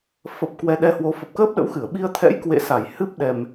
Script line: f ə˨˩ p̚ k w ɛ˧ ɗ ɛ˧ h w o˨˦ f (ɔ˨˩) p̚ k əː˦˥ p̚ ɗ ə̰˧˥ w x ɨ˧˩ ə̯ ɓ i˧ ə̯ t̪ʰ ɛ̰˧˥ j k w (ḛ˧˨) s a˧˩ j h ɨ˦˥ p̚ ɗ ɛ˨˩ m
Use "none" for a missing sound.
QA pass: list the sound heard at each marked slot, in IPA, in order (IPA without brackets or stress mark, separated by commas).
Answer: ə˨˩, ḛ˧˨